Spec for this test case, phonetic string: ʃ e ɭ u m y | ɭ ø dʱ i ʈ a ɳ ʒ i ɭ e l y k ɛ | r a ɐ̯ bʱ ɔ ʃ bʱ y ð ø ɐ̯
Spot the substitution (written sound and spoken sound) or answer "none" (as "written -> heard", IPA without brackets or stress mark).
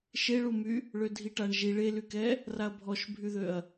none